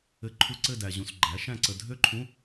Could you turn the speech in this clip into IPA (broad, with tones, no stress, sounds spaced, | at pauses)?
ɘ˧˥˧ ǃʰ u˦˨ ǀ ɘ˦˨ d æ˨ ʑ ũ˨ s ɡ͡ǃ æ˩˥ ʃ æ̃˦˨ ǀ ə˨ dʱ ø˥ ǃʰ ũ˧˥˧